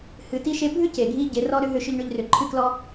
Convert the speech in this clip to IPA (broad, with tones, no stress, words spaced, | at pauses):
hɨ˧ti˦ʃe˦ bʱʏ˦ce˨ɡʱi˧ ɟe˧rɔ˦ɾʏ˦ ɦʏ˦ʃʏ˦ʎɳʏ˦ʎrʏ˧ ǃʰɨ˦klɔ˦